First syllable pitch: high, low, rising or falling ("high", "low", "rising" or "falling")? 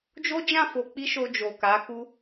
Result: high